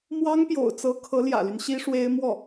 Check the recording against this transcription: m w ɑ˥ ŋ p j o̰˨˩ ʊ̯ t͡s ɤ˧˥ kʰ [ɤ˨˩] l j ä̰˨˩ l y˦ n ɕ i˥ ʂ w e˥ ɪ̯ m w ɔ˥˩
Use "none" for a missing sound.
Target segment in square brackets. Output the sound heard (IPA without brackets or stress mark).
ɤ˧˥